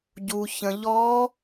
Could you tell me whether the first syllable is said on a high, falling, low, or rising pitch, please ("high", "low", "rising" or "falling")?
low